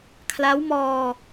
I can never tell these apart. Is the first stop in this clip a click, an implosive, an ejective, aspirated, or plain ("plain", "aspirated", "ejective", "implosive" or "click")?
aspirated